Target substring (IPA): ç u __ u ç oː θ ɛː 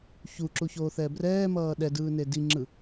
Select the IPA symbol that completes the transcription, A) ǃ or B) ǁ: B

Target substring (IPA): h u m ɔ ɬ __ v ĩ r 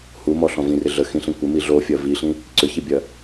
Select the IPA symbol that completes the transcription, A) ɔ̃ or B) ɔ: A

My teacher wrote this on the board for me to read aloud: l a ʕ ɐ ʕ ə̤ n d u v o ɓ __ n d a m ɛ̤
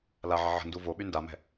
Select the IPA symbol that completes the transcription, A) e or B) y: B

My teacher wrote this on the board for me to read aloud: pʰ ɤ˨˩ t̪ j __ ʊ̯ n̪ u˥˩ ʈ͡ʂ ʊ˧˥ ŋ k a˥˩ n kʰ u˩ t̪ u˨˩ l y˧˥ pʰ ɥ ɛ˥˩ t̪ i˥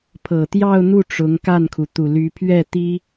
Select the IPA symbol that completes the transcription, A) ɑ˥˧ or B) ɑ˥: A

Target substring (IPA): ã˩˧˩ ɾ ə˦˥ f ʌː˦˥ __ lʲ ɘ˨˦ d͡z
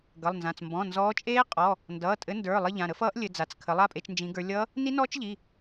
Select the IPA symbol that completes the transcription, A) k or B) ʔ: B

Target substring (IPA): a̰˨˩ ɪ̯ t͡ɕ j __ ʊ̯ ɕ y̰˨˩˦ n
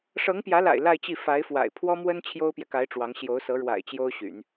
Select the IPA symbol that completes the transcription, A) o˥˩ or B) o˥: B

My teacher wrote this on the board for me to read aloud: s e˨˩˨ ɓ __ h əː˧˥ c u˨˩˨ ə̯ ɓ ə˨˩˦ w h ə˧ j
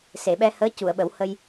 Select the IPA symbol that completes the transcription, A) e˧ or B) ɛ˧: B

